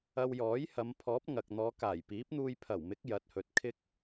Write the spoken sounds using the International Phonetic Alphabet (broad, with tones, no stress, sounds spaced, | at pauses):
ɐ˧ w j ɔː˨˥ j h ɐ˨˧ m pʰ ɔː˨˥ p̚ ŋ ɐ˨ k̚ n̪ ɔː˨˧ k aː˨˩ j p iː˨˥ p̚ n̪ uː˧ j pʰ ɐ˨˩ w m ɪ˨˥ k̚ j ɐ˨˥ t̚ h ɵ˨ t̚ kʰ ɪ˥ k̚